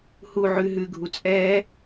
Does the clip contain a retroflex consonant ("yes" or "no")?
no